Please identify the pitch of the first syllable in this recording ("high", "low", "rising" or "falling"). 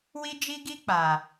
high